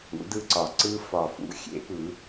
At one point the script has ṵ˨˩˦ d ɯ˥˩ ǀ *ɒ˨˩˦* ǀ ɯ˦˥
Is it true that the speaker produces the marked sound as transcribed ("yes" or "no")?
yes